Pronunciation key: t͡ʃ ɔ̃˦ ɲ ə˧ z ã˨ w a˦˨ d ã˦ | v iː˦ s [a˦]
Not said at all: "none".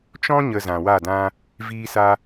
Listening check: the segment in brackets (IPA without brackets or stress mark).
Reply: a˦